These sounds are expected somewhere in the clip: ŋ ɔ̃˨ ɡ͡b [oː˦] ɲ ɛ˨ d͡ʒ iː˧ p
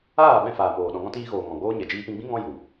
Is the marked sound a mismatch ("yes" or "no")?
no